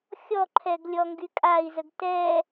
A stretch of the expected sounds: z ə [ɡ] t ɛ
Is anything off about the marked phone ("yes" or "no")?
no